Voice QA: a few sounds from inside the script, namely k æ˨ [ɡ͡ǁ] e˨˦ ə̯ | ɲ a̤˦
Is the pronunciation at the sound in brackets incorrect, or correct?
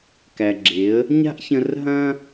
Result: correct